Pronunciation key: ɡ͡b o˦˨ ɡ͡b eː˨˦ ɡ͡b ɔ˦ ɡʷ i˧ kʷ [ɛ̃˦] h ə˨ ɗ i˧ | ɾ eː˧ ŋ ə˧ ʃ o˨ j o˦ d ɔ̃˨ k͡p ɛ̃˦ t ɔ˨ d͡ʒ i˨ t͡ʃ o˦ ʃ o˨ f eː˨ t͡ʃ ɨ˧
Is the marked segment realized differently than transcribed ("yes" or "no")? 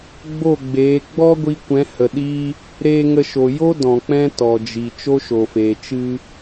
yes